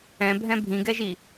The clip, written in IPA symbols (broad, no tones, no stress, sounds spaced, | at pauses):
ɛ̃ bʱ ɛ̃ bʱ ĩ ɡ ɛ ʒ i